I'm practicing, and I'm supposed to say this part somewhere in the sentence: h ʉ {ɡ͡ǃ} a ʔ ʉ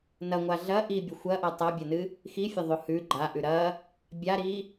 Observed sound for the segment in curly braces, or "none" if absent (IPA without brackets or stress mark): ɡ͡ǃ